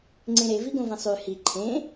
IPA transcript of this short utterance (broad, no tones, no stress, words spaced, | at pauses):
ŋ͡ǀẽɾeviɡõ vẽsˤy hi ǃʰẽ